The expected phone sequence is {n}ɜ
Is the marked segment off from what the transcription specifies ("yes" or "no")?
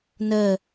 no